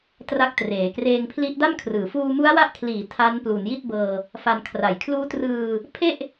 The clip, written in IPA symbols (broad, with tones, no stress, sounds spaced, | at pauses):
t r a˦˥ k̚ t r eː˩˦ k r eː˧ ŋ pʰ l i˦˥ ʔ d a˥˩ m kʰ r ɯː˩˦ f uː˧ m u˦˥ a̯ w a˦˥ ʔ kʰ l iː˩˦ tʰ a˦˥ n p l u˩˦ n j i˥˩ t̚ b ɤː˧ | f a˧ n kʰ r a˨˩ j kʰ l uː˦˥ t r ɯː˧ | pʰ e˥˩ ʔ